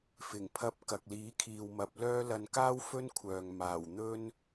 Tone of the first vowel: low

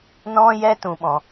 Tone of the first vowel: high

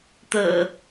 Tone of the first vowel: low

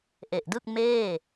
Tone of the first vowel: low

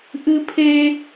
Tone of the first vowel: high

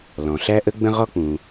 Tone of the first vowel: low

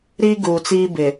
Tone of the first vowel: high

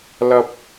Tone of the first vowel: low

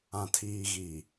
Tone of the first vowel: low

